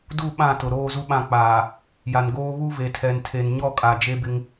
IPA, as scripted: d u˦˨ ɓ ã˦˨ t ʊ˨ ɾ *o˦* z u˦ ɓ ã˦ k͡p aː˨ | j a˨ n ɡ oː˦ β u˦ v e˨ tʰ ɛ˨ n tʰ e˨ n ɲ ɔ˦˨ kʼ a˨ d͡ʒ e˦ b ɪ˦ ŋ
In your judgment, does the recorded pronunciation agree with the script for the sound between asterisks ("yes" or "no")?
no